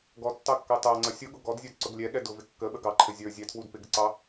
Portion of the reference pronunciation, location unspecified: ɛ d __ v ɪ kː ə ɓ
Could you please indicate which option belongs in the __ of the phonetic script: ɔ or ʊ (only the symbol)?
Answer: ʊ